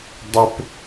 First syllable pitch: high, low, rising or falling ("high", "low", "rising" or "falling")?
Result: high